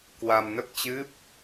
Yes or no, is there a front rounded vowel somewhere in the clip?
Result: no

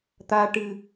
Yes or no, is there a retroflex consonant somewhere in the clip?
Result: yes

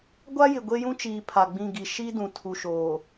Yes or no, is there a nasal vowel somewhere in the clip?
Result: yes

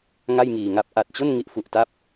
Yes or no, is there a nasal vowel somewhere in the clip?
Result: no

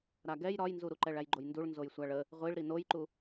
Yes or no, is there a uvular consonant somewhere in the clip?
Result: yes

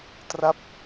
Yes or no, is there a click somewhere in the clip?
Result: no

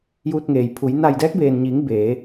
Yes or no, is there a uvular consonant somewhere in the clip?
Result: no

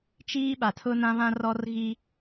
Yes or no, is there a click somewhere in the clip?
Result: no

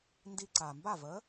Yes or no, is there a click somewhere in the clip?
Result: yes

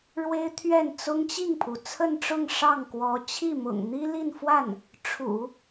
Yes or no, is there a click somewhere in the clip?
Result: no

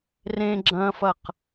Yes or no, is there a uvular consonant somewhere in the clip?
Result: yes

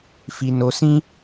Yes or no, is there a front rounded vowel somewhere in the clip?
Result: no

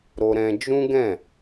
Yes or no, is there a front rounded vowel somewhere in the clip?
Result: no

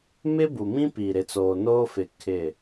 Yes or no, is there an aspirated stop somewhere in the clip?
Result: yes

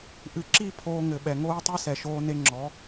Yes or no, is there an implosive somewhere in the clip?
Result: yes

